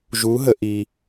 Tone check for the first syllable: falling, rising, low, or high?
rising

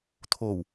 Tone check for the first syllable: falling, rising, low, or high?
low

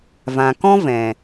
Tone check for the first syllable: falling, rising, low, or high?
low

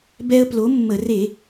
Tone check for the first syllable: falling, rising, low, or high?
high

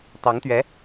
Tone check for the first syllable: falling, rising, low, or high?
rising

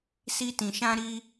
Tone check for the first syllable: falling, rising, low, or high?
high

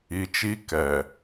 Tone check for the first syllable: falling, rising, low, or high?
low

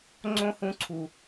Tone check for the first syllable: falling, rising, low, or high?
high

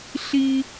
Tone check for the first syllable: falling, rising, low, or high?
high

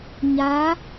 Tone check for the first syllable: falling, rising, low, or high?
rising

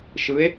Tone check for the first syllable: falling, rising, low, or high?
rising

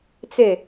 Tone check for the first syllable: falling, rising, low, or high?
falling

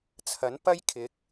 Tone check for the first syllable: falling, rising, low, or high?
rising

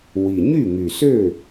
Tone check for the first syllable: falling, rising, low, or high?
low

